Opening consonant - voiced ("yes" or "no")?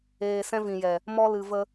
no